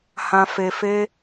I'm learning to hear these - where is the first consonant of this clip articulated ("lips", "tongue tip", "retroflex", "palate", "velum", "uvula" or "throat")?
throat